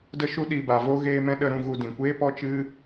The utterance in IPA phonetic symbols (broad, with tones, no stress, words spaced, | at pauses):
də˦ʃu˦ɗi˧ ba˨vo˧ ɣeː˧mɛ̃˧ɗə˧ ɾũ˧ɣu˧dĩ˨ kʷeː˦pɔ˦t͡ʃɨ˦